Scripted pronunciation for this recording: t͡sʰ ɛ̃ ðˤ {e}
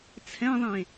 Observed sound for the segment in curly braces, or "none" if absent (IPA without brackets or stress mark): ẽ